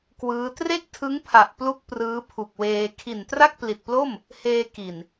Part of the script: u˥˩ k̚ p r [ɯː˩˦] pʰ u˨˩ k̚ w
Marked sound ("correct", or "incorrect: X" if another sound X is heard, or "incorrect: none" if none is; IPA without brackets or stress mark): incorrect: ɯː˦˥